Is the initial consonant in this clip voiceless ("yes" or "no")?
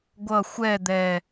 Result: no